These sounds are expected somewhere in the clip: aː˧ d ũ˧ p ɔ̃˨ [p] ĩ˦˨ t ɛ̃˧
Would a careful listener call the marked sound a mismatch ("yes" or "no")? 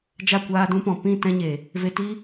no